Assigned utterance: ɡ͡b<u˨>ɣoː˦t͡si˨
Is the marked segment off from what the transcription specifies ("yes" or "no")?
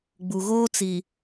no